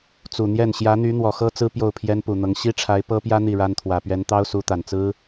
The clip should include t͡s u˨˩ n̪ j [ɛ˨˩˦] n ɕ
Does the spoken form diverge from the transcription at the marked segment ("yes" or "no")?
yes